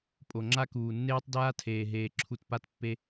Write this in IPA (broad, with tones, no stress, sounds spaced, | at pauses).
pʼ o˨ ŋ͡ǁ a˦ k uː˨ nː eː˦ tˤ d aː˦ tʰ eː˨ ɦ eː˨ ǁʰ u˧ t p a˦ t pː e˦